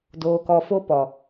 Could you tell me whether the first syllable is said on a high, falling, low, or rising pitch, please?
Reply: low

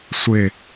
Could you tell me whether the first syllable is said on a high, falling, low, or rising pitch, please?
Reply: falling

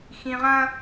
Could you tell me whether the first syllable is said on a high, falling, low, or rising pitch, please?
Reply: low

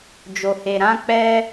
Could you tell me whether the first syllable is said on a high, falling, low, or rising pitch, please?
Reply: low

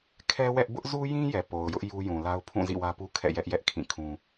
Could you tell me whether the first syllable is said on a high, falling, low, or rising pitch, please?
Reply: high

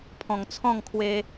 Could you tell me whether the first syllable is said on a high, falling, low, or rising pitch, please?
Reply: low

